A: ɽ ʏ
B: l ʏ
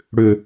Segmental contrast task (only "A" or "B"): A